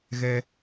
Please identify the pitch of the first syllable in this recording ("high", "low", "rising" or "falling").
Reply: high